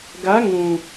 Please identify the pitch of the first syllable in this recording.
rising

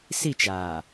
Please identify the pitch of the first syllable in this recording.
falling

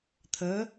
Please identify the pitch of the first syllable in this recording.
rising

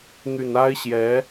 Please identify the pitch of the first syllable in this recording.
low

